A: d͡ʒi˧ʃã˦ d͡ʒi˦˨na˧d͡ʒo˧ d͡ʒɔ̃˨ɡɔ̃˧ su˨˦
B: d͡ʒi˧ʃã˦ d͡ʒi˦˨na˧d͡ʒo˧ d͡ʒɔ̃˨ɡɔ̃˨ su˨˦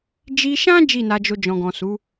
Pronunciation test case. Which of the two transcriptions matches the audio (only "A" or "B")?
B